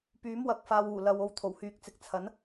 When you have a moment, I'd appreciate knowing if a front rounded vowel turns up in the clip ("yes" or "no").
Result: yes